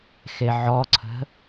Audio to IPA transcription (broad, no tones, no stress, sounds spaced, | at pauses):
x e ʕ ɔ ǀʰ ə̤